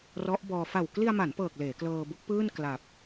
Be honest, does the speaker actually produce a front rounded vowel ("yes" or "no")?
no